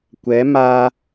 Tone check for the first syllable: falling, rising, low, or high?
rising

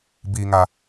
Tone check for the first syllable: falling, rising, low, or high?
high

